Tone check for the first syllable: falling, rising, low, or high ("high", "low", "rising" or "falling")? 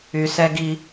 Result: low